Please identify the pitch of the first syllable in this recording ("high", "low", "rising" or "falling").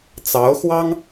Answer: rising